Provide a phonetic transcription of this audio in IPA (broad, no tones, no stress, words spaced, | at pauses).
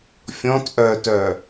fʲɔ̃t ʔœtœ